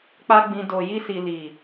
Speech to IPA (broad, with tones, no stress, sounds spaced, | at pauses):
k͡p a˦ ɡ͡b ĩ˧ d o˨ j i˧ s i˨ l i˨